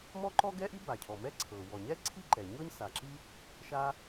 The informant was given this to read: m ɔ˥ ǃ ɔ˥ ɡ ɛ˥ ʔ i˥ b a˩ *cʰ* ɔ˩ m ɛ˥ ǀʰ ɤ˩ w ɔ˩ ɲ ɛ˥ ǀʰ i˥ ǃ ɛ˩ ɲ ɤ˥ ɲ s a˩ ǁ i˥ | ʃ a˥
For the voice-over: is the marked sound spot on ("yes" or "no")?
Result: yes